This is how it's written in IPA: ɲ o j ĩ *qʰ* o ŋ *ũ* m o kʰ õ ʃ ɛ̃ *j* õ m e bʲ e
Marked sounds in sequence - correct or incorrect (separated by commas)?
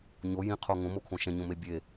correct, incorrect, incorrect